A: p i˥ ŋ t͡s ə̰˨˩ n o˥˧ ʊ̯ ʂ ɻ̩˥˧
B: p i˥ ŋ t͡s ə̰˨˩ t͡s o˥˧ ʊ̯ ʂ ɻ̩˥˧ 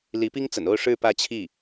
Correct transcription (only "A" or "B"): A